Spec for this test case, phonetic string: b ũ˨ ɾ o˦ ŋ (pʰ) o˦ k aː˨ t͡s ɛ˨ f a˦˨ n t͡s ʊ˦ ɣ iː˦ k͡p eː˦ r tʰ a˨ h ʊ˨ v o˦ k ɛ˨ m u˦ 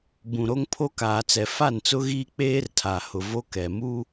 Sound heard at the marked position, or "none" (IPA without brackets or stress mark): pʰ